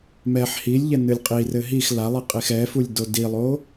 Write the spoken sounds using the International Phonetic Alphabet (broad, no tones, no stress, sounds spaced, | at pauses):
m ɛ ħ h i lʲ ʎ ɛ n ɨ lʲ qʼ i r ɘ ɦ i x l a lˠ i qʼ i x ɛ f u lʲ d o d i lˠ o